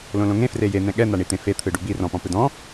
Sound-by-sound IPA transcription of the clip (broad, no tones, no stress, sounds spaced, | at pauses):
l õ l õ ŋ ẽ f r e j e n̪ ɛ̃ ɠ ɛ n̪ a ɳ i t̪ ẽ f e t̪ʰ ɯ ɖ u b i r ɔ̃ p ɔ̃ p ɯ d ɔ̃